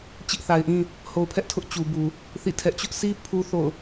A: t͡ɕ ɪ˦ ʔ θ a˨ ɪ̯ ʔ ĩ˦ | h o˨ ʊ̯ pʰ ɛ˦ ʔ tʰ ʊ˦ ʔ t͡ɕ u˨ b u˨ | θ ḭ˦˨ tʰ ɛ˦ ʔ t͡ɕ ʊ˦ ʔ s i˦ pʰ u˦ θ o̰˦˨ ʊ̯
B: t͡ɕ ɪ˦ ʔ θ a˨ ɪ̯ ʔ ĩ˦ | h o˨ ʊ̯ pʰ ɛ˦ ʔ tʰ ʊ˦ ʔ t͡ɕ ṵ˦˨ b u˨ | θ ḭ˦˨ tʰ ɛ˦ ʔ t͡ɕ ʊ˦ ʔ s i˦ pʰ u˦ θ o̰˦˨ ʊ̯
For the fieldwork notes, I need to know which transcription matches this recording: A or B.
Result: A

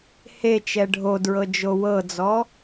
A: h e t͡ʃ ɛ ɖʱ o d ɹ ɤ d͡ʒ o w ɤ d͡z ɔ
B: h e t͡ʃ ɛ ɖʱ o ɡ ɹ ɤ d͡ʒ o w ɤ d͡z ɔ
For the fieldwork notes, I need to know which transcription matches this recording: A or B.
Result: A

